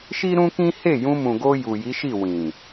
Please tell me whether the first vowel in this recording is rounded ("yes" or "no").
no